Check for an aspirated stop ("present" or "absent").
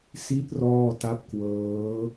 absent